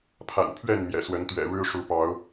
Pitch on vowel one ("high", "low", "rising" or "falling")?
low